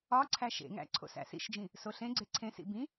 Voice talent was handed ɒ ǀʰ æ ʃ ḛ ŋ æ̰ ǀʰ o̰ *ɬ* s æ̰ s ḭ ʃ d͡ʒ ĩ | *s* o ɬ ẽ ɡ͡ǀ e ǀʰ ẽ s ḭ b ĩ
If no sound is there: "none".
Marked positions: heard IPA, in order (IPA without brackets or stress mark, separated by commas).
none, s